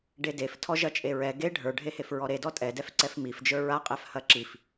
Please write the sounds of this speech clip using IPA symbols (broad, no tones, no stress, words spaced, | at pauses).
ɖedef tʰɔʒɐt͡ʃʼeɹɛ ɡe ɖʱə˞ɖʱehef ɹɔɾedɔ tʼɛdɛfǀɛf mifd͡ʒə˞ ɹaqʼɛf hɐǁif